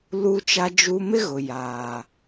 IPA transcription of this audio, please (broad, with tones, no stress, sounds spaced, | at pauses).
l u˦ t͡ʃ a˦ d͡ʒ u˦ m ɪ˦ ɣ ʊ˨ j aː˨